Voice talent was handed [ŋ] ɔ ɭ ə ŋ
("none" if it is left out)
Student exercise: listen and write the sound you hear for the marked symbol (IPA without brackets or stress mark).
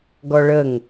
ɡ